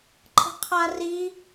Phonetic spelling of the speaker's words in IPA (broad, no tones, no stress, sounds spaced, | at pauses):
ǃʰ ə̤ qʰ a r i